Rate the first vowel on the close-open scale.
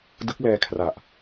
close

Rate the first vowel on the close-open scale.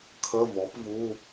mid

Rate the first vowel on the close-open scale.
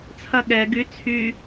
open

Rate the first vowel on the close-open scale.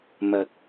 open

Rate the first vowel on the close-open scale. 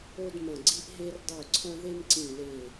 mid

